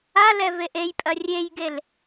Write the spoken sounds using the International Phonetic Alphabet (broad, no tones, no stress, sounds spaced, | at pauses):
a l ɛ v e ʔ e j pʼ ɐ rʲ e j ɡ e l